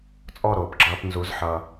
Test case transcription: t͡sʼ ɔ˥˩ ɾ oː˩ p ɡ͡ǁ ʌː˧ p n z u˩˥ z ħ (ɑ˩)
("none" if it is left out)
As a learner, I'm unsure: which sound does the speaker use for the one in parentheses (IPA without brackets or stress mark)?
ʌ˩